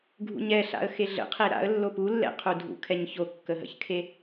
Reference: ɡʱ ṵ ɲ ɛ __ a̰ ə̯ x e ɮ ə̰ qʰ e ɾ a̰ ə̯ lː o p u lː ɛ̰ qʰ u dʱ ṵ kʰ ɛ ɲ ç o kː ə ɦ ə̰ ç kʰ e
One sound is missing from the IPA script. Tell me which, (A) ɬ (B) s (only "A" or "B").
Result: A